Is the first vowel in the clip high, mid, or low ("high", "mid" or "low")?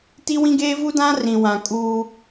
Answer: high